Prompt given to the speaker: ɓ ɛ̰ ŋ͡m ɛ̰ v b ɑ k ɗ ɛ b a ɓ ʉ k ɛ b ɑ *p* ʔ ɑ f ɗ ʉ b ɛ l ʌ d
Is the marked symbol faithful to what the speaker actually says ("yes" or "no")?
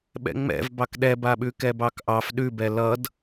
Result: no